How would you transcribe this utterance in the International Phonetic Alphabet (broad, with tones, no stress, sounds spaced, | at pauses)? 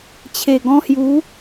t͡ɕʰ e˨˩ ɡ ɔ̃˧ h j u˨˦